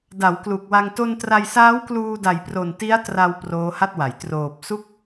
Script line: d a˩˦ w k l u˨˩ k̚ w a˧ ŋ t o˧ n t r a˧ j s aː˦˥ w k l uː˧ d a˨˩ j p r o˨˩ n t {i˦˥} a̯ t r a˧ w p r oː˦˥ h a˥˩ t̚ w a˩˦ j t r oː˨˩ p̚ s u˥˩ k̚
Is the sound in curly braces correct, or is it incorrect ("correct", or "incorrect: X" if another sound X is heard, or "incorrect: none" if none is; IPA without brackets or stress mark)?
correct